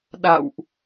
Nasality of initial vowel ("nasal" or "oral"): oral